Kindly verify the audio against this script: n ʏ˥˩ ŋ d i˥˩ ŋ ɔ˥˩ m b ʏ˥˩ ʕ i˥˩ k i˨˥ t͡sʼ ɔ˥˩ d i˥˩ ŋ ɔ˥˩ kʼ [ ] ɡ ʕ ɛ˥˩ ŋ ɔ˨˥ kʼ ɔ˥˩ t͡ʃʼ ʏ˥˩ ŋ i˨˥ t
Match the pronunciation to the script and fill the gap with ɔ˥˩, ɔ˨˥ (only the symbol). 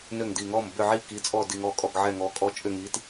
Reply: ɔ˥˩